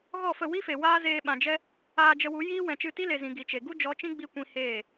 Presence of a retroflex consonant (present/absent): absent